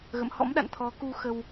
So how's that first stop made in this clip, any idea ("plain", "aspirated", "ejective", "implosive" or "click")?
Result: implosive